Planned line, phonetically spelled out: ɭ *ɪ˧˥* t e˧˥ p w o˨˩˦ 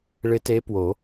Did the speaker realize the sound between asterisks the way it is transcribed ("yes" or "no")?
yes